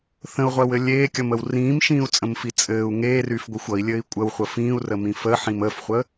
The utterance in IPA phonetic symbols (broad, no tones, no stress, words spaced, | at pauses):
θə̃u̯ʁʷɜwɘ lʲeːkʲʌməw rĩːmʃĩːu̯t͡sʼə̃mfi t͡sʼɘːu̯ ŋeːryːfɡʷixʷ ʌi̯lʲɘːi̯ kʷʼəwχʷə fĩːu̯rəmĩ fəːħĩm əːfχʷəː